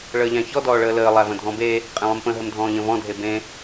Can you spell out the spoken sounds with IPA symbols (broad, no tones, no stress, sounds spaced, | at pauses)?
ɭ əː ʎ æ̃ ç ɔ d ɔː ɭ əː l əː lˠ æ v ə̃ dʱ ɔ̃ b e | qʼ ẽ lˠ ə̃ m p ə̃ ɦ ə m dʱ ɔ̃ː ʎ ə̃ v ɔ̃ dʱ e b ẽ